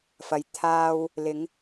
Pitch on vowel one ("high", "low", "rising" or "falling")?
low